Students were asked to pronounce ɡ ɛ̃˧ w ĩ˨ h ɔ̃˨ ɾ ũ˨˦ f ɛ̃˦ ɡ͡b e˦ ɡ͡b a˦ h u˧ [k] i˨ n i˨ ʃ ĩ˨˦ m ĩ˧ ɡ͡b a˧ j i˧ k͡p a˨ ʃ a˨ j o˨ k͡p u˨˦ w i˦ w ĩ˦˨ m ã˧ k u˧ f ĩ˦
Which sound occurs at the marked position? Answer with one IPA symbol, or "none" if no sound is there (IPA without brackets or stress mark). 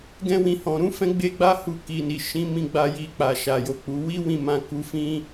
k